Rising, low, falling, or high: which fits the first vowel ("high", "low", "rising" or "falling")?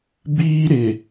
high